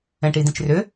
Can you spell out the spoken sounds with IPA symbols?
ɛ̃ ʈ i d ĩ t͡ʃ r ʏ

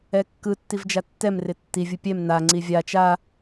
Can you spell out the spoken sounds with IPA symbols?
ɛ kː ɯ tː i v d͡ʒ a tː ɛ m r ɪ tː i vʲ ɯ pʲ ɛ m n a ŋ͡ǀ i vʲ a t͡ʃ a

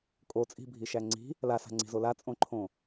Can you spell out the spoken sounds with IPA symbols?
kʼ o t͡sʼ i̤ bʱ i ʃ æ ŋ͡ǀ i̤ | l a s a̤ ŋ͡ǀ i̤ z o l a t͡sʼ õ ǃʰ õ

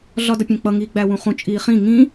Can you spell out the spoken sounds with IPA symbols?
ɮ ɒ d ʌ pʲ ɛ̃ k͡p ʌ ŋ iː ɡ͡b æ w ũ χ ũ t͡ʃʼ iː χ ĩ ŋ ĩ

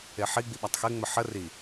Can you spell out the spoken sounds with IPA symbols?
e ħ i ɡ͡b i ɓ a tˤ x e ŋ͡m ə ħ ə r i

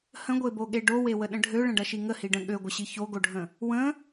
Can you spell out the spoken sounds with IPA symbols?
h ə̃ ɡʷ e b o ɠ e ɖ o w e w ə ɗ ə̃ ɖʱ ø ɭ ə̃ ɖ ɐ ʃ i ŋ ə h i ɖ ə̃ ɠ ø ɡʷ ə ɕ i ç o ɡ o ɖʱ ə̃ | w ə̃

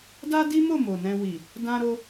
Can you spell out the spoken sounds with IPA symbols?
d a˦ d i˦ m o˦˨ m o˨ n ɛ̃˧ w i˨ | d ã˧ ɾ o˧

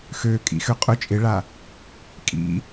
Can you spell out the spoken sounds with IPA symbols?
x ø kʼ ḭ x ø qʼ ʊ t͡ʃʼ ɪ ɭ a | kʼ ḭ

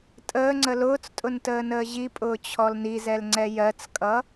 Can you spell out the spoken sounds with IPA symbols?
tʼ əː ŋ͡ǀ ə l ʊː t͡s tʼ ʊ n t əː n əː ʑ i pʼ ʊː t͡ɕʰ ɔ l n i z ɛ l ŋ͡ǀ ɛ j ɜ t͡s kʼ ʌ

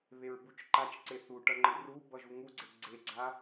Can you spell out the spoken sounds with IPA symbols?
β e ɹ b u t͡ʃ ǃ a t͡ʃ ǀ e θ u ʈ ʌ ŋ͡ǃ ɯ r u b ʌ ʒ u ŋ u ɡ͡ǀ e ɡ͡ǀ e ɡ͡ǀ a

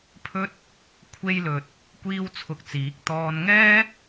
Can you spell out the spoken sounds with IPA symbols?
pʰ ɵ˥ t̚ | kʷʰ e˧ j l ɵ˨ t̚ | kʷ iː˥ w t͡sʰ ʊ˧ k̚ t͡s iː˨˥ k̚ t̪ ɔː˧ n ŋ ɛː˥

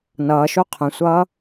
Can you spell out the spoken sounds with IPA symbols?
n ʌː ʃ o qʰ ə̃ sʷ ʌː

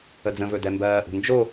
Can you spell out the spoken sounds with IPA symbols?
ə d͡z ə̃ v ɵ d ɛ m b ɜː ʔ ṳ n d͡ʒ o

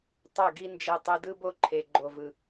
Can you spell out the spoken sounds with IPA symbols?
tˤ ɛ˦˨ ɡ i˦ n d͡ʒ ɛ˧ tˤ ɯ˧ d ɯ˦ b o˦ ǃʰ e˨ ɡ͡ǃ o˨ v ɯ˨

